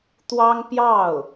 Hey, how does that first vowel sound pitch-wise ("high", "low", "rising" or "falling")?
high